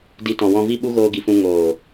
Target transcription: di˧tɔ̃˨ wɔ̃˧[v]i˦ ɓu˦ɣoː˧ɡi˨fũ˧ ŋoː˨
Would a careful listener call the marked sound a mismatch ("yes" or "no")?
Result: no